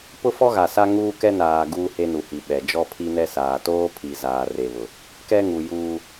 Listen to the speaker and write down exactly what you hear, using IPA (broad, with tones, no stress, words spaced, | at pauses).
pʊ˦fɔ˦ɣa˨sa˦ ŋuː˦kɛ˦naː˨ ɡuː˦he˦nu˨hi˨ ɓɛ˨ d͡ʒɔ˦pʰi˦nɛ˦saː˨ toː˦pʰi˨ zaː˨re˨βʊ˨ | kɛ˦ŋu˨ juː˦